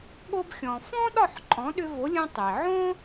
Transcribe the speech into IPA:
ɠo˧bxʲɔ̃˩fɔ̃˥ɗɒ˥˩ħ ǃʼɔ̃˩˥ɗʏ˧vo˩˥lʲõ˧ tˤi˩ʕõ˥

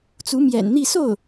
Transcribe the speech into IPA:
t͡su˧˥mjɛ̰˨˩nn̪i˥˧ so˥˩ʊ̯

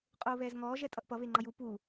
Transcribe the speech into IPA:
qʼoːβɛːzŋɔː ʒɛtʼʌʔpʌ βeŋ͡ǃʌju pu

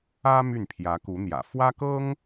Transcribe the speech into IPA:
ä˥ my˥˩npʰjä˧˥ku˧˥n̪jä̰˨˩ fwä˥kɤ˥ŋ

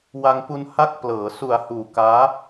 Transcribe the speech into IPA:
wa˧ŋpu˧n ha˦˥k̚plɤː˩˦ su˩˦a̯huː˩˦ kaː˦˥

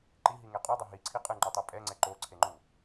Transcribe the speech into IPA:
ǃiɦiŋe qʼudˤʌ ɦiǀʰi qʼɯŋ͡ǃutˤe pʼɛŋ͡ǀɛ ǃoǀʰeŋ͡ǃu

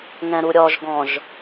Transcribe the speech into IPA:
ŋɛ̃ɾuɾʲɔʒɡɔ̃ʒ

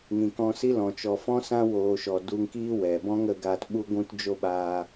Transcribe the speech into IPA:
ŋĩ˨kɔ̃˧si˦lɔ̃˨ t͡ʃɔ˨fɔ̃˦ sã˦woː˨ʃɔ˨ du˧ŋkiː˦ wɛ˨ bɔ̃˦ŋə˧ɡa˧t ɓu˧ɡʷũ˧td͡ʒo˧ ɓaː˧

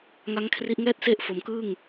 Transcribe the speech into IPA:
ŋa˦˥ŋkʰri˦˥ʔ ŋɛː˥˩t̚se˥˩ʔfo˨˩mkɯː˥˩ŋ

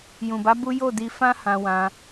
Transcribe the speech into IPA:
jũ˨ba˨˦ bu˦ jo˦˨di˧fã˦ hã˧wã˧

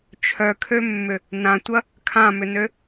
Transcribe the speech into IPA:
t͡ʃʰœkʰømːʏ | nãtʷɐ | kʰãmʏnø

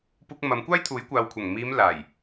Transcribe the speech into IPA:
puː˧k̚mɐ˨˧mkʷaː˥jt̪ʰuː˨˥j kʷaː˨wkʷʰɐ˨˩ŋ miː˨˧m laː˨˩j

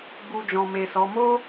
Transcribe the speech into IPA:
ɡ͡bu˧d͡ʒɔ̃˨me˨sɔ˨˦ mo˦

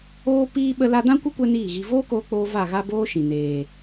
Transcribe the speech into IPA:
oː˧piː˧ ɓə˧la˧ dã˦kʷə˦ kʷɛ˦niː˦˨ɣi˧ voː˦koː˧k͡poː˧ va˦˨ ɣa˦boː˦ʃĩ˨ neː˨

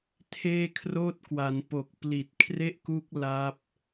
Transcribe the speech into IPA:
tʰeː˥˩kʰroː˥˩t̚kwa˩˦n po˨˩k̚pli˨˩t̚kʰre˥˩ʔku˦˥k̚ la˦˥p̚

